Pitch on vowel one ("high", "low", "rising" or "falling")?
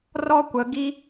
high